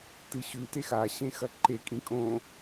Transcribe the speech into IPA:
tɨɕʉ texa ɕẽxɐǃe kʼĩkʼõ

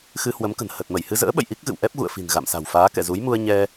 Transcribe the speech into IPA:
xɨ˧hwə˨˦mkə̤˨˩n hə˨˩t̚mə˧˩jhɨ˧zə̰ː˧˥ ɓə̰˧˨jʔi˦˥k̚ɣɨ̰˧˨w ʔɛ˦˥p̚ɣṵ˧˨ə̯fi̤˨˩n ɣa̰˧˨msa̤˨˩wfaː˨˦ kɛ̰˧˨zu˨˦jmu˧ə̯ ɲɛ˧

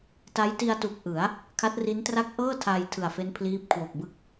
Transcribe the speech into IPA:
ta˦˥jti˧a̯tu˨˩k̚ ʔɯ˩˦a̯ | kʰa˦˥t̚ri˦˥ntra˥˩k̚ ʔɤː˥˩ tʰaː˧jtʰɯ˨˩a̯fe˦˥n pʰliː˦˥p̚kʰwo˨˩k̚bɯ˥˩k̚

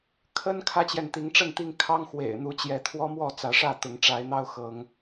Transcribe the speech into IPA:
kʰə˦n kʰä˦t͡ɕjɛ˨nt̪i˨˦ŋ ʈ͡ʂə˥˨nt̪i˥˨ŋ kʰɑ˦ŋxwḛ˨˩ɪ̯n̪u˨˦ t͡ɕjɛ˨˦t̪ʰwɔ˦mwɔ˥˨ t͡sä˨˦ʂä˥˨t̪ʊ˨˦ŋ ʈ͡ʂa˨˦ɪ̯n̪ɑ˦ʊ̯ xɤ˨˦ŋ

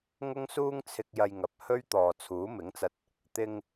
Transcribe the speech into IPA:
ŋʊ˥ŋsuː˥ŋt͡sʰɪ˧k̚ jɐ˧jŋɐ˨p̚hɵ˥ɥ t̪ɔː˨t͡sʰuː˨˥ mɪ˨˥ŋt͡sɐ˧t̚ | t̪ɪ˧ŋ

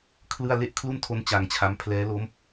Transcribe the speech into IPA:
kʰlɯ˥˩a̯ le˥˩ʔkʰlu˥˩ntʰo˦˥n t͡ɕa˧ŋt͡ɕʰa˦˥m pʰlɛː˦˥lo˦˥m

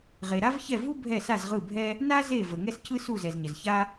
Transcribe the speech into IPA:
ʁe˨ɾa˥vçɛ˦˨vu˥ bʱɛ˦˨sa˦˨zʁɯ˦˨bʱɛ˥ | na˥ ze˦˨ və˨ ŋɛ˥scɯ˥su˦˨zɛ˨z ɲə˨zça˥

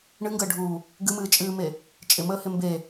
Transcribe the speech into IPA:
ɳɨŋɡəːɖʱuː | ɡɨmɨːt͡ʃʼɨːme | t͡ʃʼɪməːhɪ mbe

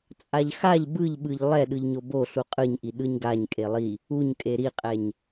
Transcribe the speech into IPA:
t͡sʼaʎxaʎ bɯʎɓɯʎ lˠɛ ɗɯʎɲobo ɬuqʼɯɲʔi ɗɯɲɡaɲ kʼelˠi | uɲkʼe ɾiqʼɛɲ

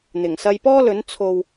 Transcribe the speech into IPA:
n̪ɪ˨˩ŋsɐ˧jpɔː˥lɵ˨˥n t͡sʰo˨w

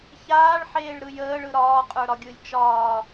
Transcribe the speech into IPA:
çaːɭħeːɭɾɯ jəːɭɯ ɾɒːqʼə˞ɾɒ ɡʲɯlʲt͡ʃɒː

